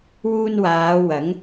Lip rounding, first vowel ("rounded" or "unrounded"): rounded